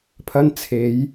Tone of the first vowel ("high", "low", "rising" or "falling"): high